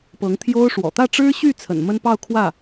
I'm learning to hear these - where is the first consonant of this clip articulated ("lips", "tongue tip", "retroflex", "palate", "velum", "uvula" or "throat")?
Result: lips